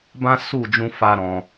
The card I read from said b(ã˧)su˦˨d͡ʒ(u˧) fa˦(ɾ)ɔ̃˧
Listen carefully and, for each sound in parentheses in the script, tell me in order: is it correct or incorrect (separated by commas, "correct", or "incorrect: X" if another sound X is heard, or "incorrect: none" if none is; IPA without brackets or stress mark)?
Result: incorrect: ã˦, incorrect: ũ˧, correct